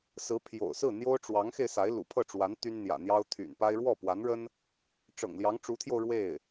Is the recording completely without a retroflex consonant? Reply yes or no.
no